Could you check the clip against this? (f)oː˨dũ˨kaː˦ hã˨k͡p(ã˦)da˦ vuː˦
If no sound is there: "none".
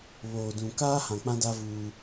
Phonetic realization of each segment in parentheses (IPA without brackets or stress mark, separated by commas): β, ã˦